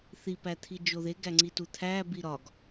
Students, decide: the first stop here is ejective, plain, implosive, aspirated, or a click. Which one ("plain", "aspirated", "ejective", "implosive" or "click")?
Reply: plain